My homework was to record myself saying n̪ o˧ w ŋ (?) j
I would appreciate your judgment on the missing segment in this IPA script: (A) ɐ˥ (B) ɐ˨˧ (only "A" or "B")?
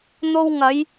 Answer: B